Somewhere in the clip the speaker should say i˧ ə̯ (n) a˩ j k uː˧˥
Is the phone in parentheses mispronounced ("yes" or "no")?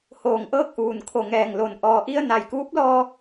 no